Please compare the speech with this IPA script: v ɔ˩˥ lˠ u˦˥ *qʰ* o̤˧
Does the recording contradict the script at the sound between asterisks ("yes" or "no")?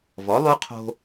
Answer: no